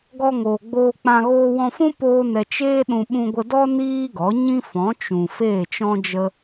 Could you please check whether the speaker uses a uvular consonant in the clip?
no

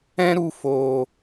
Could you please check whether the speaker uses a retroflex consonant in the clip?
no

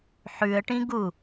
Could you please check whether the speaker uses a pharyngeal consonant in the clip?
yes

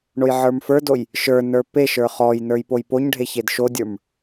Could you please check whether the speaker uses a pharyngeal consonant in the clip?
yes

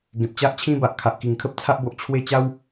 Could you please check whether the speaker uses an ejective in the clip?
no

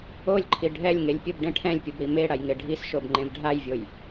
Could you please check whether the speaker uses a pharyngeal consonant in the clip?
no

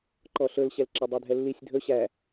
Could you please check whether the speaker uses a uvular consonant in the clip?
no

